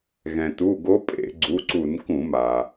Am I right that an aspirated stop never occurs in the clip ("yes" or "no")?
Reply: yes